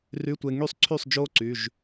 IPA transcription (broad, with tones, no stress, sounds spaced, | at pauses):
r y˧˥˧ tʷ e˧ ŋ y˥˩ sˤ ǀʰ y˥˩ sˤ d͡ʒ oː˦˥ ǀ y˩˧˩ ʒ